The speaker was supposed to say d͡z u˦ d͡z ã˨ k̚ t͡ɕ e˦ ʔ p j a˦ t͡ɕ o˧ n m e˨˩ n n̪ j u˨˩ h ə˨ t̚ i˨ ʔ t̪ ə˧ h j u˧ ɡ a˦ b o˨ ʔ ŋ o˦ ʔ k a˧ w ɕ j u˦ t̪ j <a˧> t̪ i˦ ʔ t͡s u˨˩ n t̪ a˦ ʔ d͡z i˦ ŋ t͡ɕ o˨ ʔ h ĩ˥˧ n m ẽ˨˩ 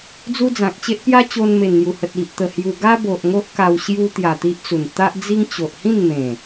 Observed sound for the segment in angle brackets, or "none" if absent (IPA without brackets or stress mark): a˨˩